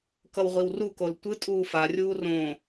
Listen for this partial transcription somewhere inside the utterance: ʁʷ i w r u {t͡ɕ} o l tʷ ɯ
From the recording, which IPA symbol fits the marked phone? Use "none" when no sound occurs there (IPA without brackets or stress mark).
k